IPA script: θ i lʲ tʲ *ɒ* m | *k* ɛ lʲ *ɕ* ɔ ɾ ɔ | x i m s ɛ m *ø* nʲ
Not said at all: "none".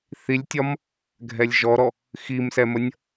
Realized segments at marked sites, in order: ɒ, ɡʱ, ʒ, ə

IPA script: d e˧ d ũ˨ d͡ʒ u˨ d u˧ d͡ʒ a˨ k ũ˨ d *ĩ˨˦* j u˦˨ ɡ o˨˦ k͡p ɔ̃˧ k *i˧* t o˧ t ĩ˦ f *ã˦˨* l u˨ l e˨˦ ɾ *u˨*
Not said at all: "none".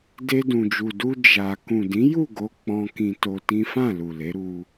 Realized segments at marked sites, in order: ĩ˨˦, ĩ˧, ã˦˨, u˧

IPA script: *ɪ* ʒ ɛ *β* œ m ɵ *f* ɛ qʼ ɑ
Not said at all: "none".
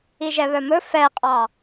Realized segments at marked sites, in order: i, β, f

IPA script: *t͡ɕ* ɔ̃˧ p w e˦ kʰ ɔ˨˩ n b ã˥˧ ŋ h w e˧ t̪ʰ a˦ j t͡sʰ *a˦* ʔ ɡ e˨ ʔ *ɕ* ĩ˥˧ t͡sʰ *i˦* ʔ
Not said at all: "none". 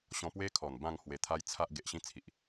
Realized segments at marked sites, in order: ɕ, a˦, ɕ, i˨

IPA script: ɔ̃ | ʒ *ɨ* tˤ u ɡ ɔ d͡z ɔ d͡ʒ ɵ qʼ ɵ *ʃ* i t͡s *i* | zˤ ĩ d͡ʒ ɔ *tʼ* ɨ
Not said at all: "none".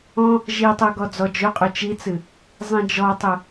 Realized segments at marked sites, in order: i, t͡ʃ, ɨ, tˤ

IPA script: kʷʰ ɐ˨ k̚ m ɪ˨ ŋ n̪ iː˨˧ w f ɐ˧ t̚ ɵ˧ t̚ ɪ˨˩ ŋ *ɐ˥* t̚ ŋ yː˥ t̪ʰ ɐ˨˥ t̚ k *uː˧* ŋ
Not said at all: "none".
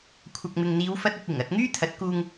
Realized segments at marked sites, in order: ɐ˧, uː˧

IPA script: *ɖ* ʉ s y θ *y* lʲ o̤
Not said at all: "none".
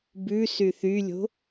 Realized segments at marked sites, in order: b, y

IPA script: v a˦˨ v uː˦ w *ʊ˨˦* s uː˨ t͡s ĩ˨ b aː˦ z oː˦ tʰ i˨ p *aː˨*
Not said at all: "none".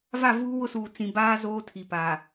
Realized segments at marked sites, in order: ʊ˦, aː˨

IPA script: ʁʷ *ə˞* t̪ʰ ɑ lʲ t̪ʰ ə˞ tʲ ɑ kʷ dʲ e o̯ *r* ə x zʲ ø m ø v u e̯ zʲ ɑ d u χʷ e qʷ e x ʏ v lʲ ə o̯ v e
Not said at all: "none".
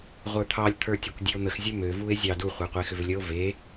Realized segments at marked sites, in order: ə˞, n̪

